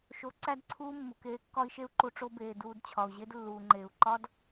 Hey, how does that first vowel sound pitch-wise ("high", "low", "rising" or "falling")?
rising